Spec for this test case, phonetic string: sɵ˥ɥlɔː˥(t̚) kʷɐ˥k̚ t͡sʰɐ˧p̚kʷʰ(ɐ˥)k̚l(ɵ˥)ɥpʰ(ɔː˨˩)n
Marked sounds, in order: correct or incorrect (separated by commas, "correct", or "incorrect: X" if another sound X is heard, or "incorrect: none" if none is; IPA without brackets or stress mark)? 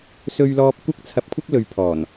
incorrect: p̚, correct, incorrect: ɵ˨˧, correct